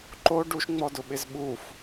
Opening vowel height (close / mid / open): mid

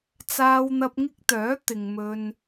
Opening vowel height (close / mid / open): open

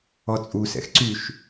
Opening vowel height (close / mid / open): mid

